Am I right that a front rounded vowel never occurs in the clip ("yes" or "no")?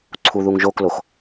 yes